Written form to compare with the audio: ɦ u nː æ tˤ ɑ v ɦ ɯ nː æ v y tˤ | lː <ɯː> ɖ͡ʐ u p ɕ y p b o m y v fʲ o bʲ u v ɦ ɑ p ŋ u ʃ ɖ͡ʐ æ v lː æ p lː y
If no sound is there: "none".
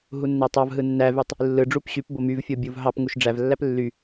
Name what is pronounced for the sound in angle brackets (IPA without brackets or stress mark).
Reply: ɯ